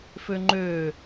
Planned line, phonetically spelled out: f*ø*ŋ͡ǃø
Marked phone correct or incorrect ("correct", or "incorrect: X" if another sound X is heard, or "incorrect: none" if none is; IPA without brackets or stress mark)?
correct